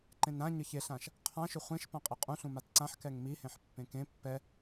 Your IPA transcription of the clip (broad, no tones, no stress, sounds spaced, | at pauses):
ǃ ẽ n ɾ ã ɲ ə ç e ɬ ã ʃ | qʰ ã ʃ ʏ χʷ ẽ ʃ p ã qʼ i qʼ ũ ɬ ũ m a t ǀ ã ħ k ɛ ŋ m i h ẽ ħ pː ẽ k ẽ pː ɛ